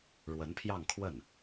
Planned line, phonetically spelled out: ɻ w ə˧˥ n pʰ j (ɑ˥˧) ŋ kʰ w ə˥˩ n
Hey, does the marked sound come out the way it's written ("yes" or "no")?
yes